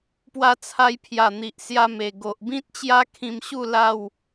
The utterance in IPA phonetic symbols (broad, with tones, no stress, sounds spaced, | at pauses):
p w a˧ t͡sʰ a˧ j pʰ j a˨˩ n̪ i˨ ʔ s j a˧ m e˨˩ ɡ o˨ ʔ b ĩ˦ t̚ t͡ɕ j a˦ kʰ ĩ˧ m ɕ u˥˧ l a˥˧ w